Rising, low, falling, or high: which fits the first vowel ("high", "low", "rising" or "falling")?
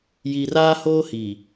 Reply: low